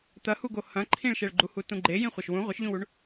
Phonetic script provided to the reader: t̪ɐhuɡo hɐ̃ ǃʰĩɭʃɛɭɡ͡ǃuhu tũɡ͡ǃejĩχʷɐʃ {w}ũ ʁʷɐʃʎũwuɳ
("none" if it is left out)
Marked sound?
w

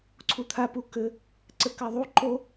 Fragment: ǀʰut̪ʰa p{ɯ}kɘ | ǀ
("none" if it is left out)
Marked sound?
u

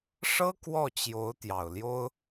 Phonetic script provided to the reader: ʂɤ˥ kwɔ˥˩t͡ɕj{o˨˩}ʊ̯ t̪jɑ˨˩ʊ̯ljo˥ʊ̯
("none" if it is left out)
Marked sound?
o˧˥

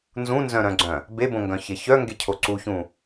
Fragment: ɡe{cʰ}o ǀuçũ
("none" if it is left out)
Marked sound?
cʰ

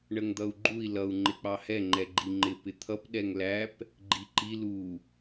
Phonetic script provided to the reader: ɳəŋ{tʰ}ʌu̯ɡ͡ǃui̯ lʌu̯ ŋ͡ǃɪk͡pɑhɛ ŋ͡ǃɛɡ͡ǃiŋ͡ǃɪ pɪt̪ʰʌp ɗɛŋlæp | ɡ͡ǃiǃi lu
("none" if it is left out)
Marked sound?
d̪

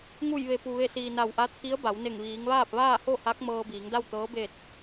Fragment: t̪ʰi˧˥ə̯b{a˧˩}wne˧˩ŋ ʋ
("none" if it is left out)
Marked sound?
a˩˧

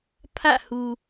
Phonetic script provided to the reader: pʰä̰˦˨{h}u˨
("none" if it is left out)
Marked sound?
h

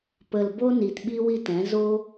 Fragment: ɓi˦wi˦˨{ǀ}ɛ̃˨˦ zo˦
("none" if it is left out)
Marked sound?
t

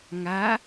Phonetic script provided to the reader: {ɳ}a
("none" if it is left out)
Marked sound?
ŋ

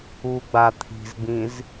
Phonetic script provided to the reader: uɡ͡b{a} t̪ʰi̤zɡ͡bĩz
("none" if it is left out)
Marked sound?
a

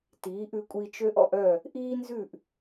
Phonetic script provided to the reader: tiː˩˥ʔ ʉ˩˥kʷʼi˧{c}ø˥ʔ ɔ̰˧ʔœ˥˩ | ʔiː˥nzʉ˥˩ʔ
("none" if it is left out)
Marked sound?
t͡ʃ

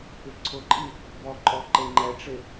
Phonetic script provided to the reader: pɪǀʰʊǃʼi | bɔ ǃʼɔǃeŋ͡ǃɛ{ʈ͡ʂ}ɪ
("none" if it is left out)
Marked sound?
ʈ͡ʂ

